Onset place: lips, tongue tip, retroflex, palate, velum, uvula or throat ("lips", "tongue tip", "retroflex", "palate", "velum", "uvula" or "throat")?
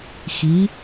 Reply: velum